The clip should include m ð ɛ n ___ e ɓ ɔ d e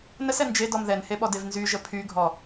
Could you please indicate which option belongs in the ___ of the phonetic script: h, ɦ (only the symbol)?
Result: h